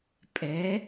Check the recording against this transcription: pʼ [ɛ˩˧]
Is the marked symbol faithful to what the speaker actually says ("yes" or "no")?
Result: yes